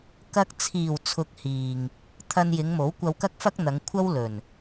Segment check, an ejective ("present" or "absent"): absent